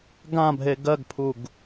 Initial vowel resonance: nasal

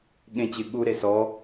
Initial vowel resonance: nasal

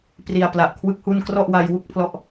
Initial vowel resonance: oral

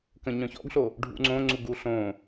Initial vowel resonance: nasal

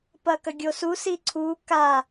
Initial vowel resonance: oral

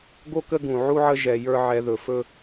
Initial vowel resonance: oral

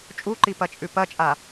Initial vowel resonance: oral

